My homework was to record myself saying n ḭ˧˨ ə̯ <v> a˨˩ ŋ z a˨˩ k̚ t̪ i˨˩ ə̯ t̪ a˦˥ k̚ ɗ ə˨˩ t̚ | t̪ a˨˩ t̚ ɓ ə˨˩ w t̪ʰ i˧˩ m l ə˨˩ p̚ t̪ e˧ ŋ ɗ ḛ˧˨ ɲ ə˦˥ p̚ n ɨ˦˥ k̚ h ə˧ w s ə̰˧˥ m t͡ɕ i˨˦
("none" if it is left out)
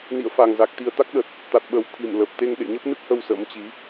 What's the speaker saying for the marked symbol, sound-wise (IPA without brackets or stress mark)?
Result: f